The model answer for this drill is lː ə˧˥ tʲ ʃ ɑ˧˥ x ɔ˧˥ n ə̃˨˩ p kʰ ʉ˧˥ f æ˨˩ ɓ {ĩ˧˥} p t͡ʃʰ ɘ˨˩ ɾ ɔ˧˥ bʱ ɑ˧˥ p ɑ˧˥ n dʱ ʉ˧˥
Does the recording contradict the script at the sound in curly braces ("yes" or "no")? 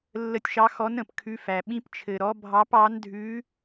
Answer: no